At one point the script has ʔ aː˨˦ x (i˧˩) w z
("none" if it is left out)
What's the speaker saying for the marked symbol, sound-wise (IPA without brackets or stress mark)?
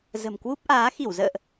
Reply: i˧˩